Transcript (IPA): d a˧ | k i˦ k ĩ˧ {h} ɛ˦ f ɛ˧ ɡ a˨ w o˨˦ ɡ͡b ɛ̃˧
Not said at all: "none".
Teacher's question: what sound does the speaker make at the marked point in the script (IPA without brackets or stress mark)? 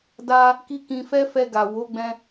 f